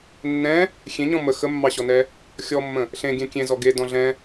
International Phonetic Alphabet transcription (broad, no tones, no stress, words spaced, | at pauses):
nːɛ̃ | xʲẽɲɔ̃ mə xəmːɑɕɔnɛ | xʲɔmːə̃ | ɬẽɡʲɛ̃ kʲẽzɔ ɡedɔ̃ ɮɛ̃